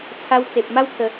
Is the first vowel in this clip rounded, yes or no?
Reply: no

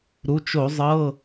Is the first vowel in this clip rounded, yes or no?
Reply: yes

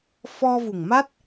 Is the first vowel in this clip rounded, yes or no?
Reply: yes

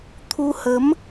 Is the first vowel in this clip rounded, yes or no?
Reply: yes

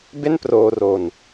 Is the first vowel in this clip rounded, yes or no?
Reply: no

